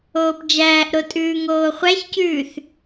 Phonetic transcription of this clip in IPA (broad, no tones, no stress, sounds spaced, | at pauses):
oː p d͡ʒ æː ʔ ɾ o tʼ ʉː ŋ oː χʷ æ ç c ʉː θ